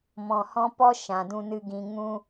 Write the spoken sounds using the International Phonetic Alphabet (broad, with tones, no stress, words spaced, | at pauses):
mɔ̃˨hɔ̃˧ pɔ˦ ʃã˧dũ˦nɨ˦ɡĩ˦ ŋũ˦